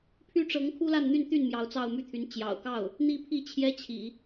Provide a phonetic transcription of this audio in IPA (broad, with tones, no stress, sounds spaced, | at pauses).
pʰ y˥ ʈ͡ʂ ɤ˧˥ ŋ kʰ u˥ l a˥˧ n n̪ y˥˧ n t̪ y˥˩ n m j ɑ˧˥ ʊ̯ t͡s ɑ˥˧ ʊ̯ m y˥˩ t̪ʰ y˧˥ n t͡ɕ j ɑ̰˨˩ ʊ̯ k ɑ˥˩ ʊ̯ | n̪ i˥˧ pʰ i˥˩ t͡ɕʰ j ɛ˥ t͡ɕʰ ḭ˨˩˦